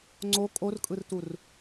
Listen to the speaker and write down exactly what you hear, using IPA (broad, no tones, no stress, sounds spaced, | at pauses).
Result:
ŋ͡ǀ o kʼ o r kʼ ɯ r t u r